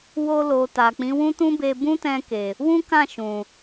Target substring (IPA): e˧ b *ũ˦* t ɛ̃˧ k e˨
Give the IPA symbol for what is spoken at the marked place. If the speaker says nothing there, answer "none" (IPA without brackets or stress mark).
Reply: ũ˦